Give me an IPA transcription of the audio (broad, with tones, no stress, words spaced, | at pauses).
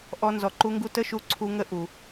ʔɔ˧ nzɔ˨ǃu˧ŋɡu˧ tə˦ʃu˧ ǀʰu˧ŋə˦˨ ʔu˨